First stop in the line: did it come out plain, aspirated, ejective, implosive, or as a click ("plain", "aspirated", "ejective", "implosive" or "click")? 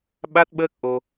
implosive